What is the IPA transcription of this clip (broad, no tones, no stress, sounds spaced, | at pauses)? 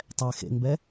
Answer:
tˤ ɛ x ḛ ŋ b ɛ